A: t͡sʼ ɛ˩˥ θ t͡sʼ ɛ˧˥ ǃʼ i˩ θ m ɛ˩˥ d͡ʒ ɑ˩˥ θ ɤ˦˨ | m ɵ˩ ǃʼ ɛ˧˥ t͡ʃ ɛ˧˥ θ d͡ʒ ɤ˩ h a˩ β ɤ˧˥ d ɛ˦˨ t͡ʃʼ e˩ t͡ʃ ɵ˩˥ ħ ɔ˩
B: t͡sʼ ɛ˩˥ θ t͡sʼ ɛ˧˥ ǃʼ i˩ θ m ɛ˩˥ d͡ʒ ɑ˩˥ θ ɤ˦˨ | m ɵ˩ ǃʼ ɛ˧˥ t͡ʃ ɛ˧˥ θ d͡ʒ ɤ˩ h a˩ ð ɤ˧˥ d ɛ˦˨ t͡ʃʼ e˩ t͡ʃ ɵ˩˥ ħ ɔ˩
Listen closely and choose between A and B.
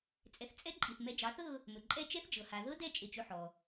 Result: B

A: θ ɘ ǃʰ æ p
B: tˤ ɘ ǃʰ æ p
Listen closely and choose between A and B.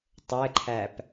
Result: B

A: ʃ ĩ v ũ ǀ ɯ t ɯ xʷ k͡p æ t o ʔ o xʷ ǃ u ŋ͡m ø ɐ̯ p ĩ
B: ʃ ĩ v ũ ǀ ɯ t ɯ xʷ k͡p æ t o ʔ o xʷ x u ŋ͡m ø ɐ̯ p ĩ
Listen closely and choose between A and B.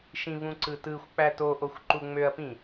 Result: A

